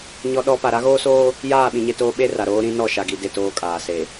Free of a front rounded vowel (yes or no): yes